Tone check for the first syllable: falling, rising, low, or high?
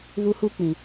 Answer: high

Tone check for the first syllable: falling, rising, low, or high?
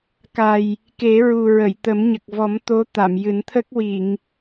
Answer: low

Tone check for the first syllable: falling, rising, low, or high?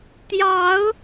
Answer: rising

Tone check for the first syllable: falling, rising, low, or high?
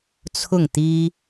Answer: falling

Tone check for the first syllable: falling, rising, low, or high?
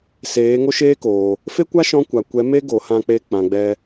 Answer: rising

